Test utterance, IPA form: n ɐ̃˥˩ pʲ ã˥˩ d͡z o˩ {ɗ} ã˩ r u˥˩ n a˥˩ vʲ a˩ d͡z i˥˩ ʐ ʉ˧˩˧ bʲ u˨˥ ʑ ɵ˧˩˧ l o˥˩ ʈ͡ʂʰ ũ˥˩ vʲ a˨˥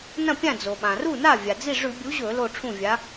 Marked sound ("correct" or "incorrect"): incorrect